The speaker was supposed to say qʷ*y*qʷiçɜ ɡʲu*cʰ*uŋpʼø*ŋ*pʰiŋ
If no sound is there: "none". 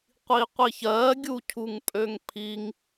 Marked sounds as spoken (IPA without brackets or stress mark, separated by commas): i, cʰ, ŋ